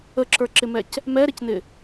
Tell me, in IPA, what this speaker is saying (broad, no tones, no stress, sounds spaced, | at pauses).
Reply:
ə ǁ ə˞ ǁ ɪ m ɛ c | m ɛ ɾ ɪ c n ɪ